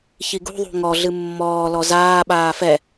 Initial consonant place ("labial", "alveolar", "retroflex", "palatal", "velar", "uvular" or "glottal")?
palatal